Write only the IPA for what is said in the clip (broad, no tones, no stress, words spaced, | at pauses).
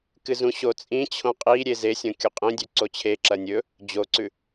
kɨzũɕot͡sʼĩ t͡ɕʰõqʼi ɾʲezesʲõ kʲuqʼĩ dʲʉǀot͡ɕʰe ǁɐnʲɵ | d͡ʑoǀʉ